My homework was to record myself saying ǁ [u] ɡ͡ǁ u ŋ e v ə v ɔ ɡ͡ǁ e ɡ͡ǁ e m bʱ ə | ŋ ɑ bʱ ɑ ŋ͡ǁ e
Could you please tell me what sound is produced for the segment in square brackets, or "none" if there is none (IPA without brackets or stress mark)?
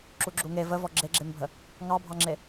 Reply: u